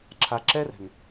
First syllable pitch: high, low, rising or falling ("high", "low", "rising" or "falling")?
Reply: low